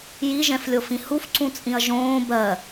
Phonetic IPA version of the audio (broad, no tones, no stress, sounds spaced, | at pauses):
j i ʒ ɛ̃ f lʲ o f ĩ h u f ǀ ũ t͡sʼ ĩ ɐ̯ ʒ õː b ɜ